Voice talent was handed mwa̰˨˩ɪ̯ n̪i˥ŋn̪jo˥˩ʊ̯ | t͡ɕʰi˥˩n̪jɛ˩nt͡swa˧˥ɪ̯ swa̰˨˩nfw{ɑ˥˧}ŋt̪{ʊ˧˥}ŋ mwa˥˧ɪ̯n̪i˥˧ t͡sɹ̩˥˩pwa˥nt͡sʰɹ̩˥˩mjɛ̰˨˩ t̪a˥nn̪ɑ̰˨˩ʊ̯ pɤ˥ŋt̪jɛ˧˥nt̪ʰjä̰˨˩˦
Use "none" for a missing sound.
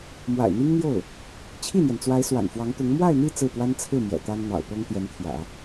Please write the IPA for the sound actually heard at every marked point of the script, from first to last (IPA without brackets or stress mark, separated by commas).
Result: ɑ˧˥, ʊ˧˥